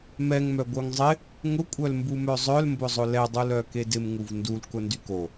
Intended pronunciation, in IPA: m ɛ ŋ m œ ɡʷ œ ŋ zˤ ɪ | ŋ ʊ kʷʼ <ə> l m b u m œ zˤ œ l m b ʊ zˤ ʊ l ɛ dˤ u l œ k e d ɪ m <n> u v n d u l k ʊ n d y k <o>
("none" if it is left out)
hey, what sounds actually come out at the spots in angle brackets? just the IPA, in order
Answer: œ, ŋ, o

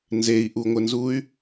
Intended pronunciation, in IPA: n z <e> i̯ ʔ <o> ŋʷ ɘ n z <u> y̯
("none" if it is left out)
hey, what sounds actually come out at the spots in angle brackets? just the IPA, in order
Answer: e, u, u

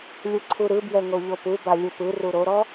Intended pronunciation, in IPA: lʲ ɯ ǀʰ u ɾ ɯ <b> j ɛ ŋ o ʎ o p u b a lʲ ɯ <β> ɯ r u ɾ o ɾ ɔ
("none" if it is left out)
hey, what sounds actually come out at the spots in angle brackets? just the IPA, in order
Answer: b, p

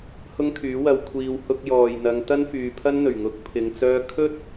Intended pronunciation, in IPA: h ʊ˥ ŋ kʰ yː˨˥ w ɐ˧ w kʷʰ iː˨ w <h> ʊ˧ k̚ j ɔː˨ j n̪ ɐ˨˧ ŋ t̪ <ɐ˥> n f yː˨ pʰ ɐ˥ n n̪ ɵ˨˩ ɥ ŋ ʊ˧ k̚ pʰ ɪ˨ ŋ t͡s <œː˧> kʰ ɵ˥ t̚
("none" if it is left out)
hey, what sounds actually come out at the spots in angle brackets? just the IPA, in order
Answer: h, ɐ˥, œː˧

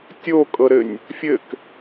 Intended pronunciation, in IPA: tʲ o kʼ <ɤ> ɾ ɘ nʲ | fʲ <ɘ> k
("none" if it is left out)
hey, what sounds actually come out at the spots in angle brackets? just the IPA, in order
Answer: ɤ, ɘ

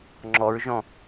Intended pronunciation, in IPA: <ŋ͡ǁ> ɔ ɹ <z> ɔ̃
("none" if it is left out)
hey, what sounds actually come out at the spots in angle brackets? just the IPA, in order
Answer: ŋ͡ǁ, ʒ

